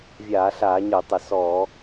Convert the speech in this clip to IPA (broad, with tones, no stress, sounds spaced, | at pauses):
vʲ aː˧˩˧ ɬ aː˧˩˧ ɲ ə˞˧˩˧ tˤ ə˧˩˧ s ɔː˧˩˧